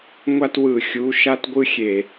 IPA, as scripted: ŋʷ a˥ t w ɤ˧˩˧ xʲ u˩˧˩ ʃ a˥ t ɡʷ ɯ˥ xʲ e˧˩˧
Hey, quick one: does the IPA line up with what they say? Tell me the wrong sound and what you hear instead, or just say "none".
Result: ɤ˧˩˧ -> ɯ˧˩˧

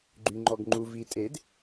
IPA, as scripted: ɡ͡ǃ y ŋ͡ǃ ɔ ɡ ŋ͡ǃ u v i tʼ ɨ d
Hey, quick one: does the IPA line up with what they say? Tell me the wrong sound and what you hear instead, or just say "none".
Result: ɨ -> e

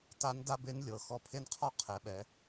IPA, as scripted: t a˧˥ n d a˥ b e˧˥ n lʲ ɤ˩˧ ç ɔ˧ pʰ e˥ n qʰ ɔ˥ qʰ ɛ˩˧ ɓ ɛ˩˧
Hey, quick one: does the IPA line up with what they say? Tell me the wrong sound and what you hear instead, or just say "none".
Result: ç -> x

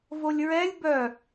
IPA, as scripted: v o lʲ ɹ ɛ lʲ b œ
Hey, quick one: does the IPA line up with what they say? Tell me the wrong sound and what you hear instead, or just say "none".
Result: none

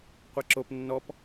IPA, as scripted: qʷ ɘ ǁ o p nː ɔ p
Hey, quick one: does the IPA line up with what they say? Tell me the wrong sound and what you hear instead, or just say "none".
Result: ɘ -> e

